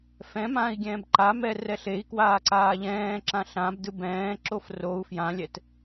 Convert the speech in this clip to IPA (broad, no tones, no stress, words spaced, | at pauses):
fɛ̃mãːi̯ ɡʲɛ̃ːbǃamɛ rɛɬei̯kwaː ǀaːʎɛ̃ːǁã ɬãbdɯ bɛ̃ːǁof rou̯ fjãlʲɛt